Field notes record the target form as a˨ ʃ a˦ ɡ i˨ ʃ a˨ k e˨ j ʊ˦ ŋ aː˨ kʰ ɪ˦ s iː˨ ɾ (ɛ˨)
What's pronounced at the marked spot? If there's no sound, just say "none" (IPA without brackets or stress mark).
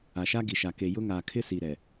ɛ˨